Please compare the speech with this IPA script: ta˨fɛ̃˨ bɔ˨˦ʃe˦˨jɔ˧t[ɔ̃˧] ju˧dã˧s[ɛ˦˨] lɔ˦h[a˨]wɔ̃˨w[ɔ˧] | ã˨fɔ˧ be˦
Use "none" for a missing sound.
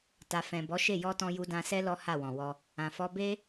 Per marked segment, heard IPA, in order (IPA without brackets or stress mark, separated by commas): ɔ̃˧, ɛ˦, a˦˨, ɔ˧